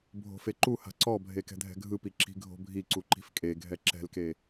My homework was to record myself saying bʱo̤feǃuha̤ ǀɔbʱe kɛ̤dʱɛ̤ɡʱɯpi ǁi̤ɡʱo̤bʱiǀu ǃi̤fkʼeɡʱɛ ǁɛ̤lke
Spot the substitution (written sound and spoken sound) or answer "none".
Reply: none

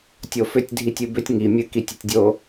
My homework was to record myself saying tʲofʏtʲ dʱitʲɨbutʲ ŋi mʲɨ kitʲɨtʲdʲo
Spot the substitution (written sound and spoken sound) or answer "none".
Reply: u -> ʏ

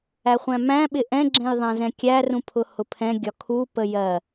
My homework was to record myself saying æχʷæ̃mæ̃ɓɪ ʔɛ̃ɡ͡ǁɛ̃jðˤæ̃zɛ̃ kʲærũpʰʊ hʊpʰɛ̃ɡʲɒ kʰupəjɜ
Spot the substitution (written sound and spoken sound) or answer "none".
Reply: none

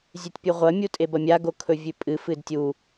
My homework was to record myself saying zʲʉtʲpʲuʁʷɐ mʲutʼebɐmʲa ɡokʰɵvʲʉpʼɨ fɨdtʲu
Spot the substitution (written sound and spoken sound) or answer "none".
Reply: none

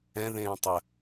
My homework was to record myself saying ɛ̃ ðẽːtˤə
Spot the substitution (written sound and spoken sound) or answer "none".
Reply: none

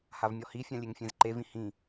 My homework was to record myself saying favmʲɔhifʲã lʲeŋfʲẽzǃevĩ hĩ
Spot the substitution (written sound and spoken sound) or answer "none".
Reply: f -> h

